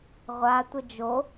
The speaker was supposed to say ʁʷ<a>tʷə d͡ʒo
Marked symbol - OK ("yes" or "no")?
yes